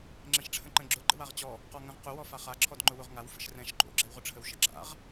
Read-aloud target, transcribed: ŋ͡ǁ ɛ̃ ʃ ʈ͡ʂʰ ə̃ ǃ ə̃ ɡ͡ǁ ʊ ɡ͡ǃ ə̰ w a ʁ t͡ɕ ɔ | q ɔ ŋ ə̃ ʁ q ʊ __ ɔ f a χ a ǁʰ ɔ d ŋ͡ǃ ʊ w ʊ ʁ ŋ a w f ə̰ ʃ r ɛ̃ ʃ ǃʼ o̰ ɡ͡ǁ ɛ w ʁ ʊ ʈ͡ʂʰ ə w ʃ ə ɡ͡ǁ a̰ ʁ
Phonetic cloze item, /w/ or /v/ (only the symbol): w